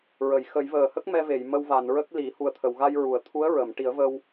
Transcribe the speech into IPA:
ɹə˨˩˨j xə˨˩˦j vəː˨˩hə˦˥k̚ mɛ˧ve˨˩˨j mə˧wva˨˩˨nɹə˦˥k̚ li˨˩˦ hu˨˩ə̯t̪ʰə˨˩˨wɣa˧j ɹu˨˩˨ə̯t̪ʰu˧˥ə̯ ɹə˨˩˨m ʈi˨˩˦ə̯və˧w

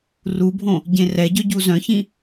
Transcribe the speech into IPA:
rubʱõ | ɟẽrɛɟœ ɟuzœ̃çĩ

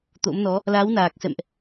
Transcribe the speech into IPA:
t̪o̰˧˥mnɔ˨˦ | la˨˦w naː˨˩k̚sɛ̰˧˨mʔ

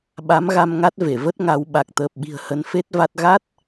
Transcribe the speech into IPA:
ɓa˨˦mɣa˧mŋa˦˥t̚ ve˧˩və˦˥t̚ŋa˧w ɓa˨˩k̚t̪əː˨˩p̚ɓi̤˨˩ə̯ hə˨˦nfe˦˥t̚va˦˥t̚ ɣa˦˥t̚

